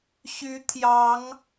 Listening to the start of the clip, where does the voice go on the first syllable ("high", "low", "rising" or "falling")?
rising